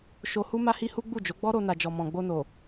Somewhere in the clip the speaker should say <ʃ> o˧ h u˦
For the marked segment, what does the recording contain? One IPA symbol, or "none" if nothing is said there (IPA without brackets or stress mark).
ʃ